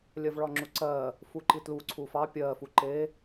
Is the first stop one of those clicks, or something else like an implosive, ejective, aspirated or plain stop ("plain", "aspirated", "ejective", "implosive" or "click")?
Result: click